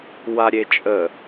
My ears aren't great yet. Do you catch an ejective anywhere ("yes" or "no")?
yes